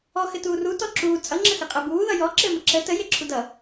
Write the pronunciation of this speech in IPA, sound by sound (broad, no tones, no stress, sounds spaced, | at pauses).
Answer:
ɔ x ɘ t uː r u t ɔ ǁ uː t͡sʼ ʌ ŋ͡ǁ ə x ɘ qʼ ɛ b uː ð ʌ j ɔ ǁ ɘː m ə ǁ ə t ə j e ǁʰ u d ʌ